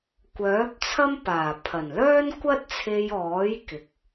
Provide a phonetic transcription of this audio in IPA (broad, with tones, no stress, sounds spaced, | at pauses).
kʷ œː˨˥ p̚ t͡sʰ ɐ˥ m p aː˨˩ pʰ ɐ˨˩ n l œː˥ n kʷ ɐ˥ t̚ t͡sʰ e˧ j ɔː˨˥ j k ɪ˨˥ k̚